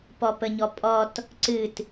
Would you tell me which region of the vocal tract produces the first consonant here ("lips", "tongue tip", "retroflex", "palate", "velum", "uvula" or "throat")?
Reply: lips